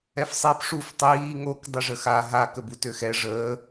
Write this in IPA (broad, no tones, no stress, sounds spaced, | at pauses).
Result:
ɛ f sˤ i p ʂ u f tˤ iː ŋ o k dˤ ə ʐ ə x a ɦ a k ə b u t ø x ɛ ʐ əː